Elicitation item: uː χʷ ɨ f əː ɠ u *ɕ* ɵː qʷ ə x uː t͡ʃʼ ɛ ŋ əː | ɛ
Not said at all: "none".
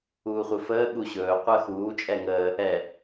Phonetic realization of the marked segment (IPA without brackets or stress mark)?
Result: ɕ